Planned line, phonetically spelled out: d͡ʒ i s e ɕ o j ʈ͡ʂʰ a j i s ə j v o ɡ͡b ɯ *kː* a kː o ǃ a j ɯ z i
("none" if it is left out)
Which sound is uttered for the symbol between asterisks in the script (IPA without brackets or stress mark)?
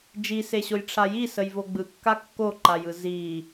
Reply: kː